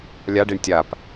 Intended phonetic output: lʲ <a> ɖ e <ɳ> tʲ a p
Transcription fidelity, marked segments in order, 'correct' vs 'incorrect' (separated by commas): correct, correct